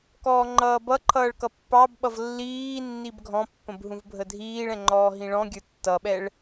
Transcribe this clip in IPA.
k ɔː ŋ͡ǃ ʌː b ʌ ǃʰ ʌː ɭ k ʌ pː ɑ b ɓ ʌ v lː iː nː i b ɡʱ ɔ̃ pː ə̃ b ɦ ũ v bʱ ə dʱ iː ɭ ɛ̃ ŋ͡ǃ ɔː ɦ ĩ ɭ ɔ̃ ɡʲ ə˞ tː ʌ ɓ ɛ ɭ

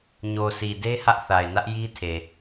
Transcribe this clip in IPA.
ɲ o˨ s i˨ d e˦ h ä˦ ʔ θ a˨ ɪ̯ n ä˦ ʔ j i˦ tʰ e˨

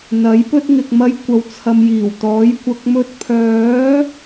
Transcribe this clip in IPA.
n̪ ɐ˨˥ j p ɵ˥ t̚ ŋ ɪ˨ k̚ m ɐ˧ j kʷ ɐ˨ w t͡sʰ ɐ˨ m j iː˨˩ w t̪ ɔː˨˥ j kʷ ɐ˨ k̚ m ɵ˧ t̚ pʰ œː˨˥

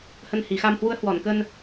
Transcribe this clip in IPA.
h ə˧ n h i˨˩ x a˧ m h w u˨˦ ə̯ h w ɔ˧˩ n k ə˧ n

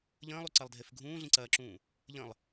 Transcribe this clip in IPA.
ʎ ə̃ː lˠ u ǀ ɐ lˠ dʱ e f ɡʱ ũː ɮ ĩ ǀ ɐː ǁ ũː | ʎ ə̃ lˠ

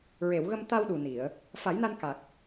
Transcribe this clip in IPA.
ɹ e˨˩˨ w ɣ ə˧ m t̪ a˧ w ɗ u˨˩ n i˨˩˨ ə̯ | f a˨˩˦ j n a˧ n k a˨˩ k̚

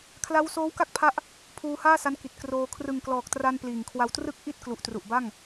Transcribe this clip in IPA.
kʰ l a˦˥ w s oː˦˥ w k a˥˩ k̚ pʰ a˦˥ ʔ | pʰ uː˧ h aː˥˩ s a˦˥ n k i˨˩ t̚ k r oː˧ kʰ r ɯ˨˩ ŋ k l ɔː˨˩ k̚ t r a˧ n p l iː˨˩ ŋ kʰ w a˧ w t r ɯ˥˩ k̚ ʔ i˥˩ t̚ k l u˨˩ ʔ t r u˨˩ ʔ b a˥˩ ŋ

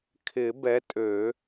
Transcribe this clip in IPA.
kʰ ɪ˨˩˦ b ɛ˨˥ tʼ ø˨˩˦

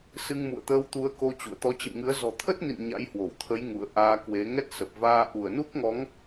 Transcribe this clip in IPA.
s ɨ˧ ŋ m ṵ˧˨ ə̯ t̪ əː˧ w t̪ u˨˦ ə̯ k o˧ t͡ɕ ṵ˧˨ ə̯ t̪ ɔ˨˦ t͡ɕ ḭ˧˨ m ŋ ɨ˨˦ ə̯ z ɔ̤˨˩ t̪ʰ ə˦˥ t̚ n ḭ˧˨ n ɲ a̰˧˥ j h w o˧˩ w t̪ʰ ə˨˦ j ŋ ṵ˧˨ ə̯ ʔ aː˧ k w e˨˦ ŋ ɛ˦˥ t̚ s ə˨˩ p̚ v aː˧ ʔ u˧˩ ə̯ n u˦˥ k̚ ŋ ɔ˨˦ ŋ

